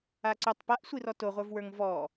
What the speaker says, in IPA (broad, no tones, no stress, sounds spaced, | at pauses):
a ǀ ʊ tˤ p a ʔ sʷ i r ɔ t o ʁʷ ə˞ v w ə˞ ŋ v ɔ